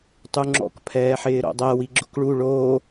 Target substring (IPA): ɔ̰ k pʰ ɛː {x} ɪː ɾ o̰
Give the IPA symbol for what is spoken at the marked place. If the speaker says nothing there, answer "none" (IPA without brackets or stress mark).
ħ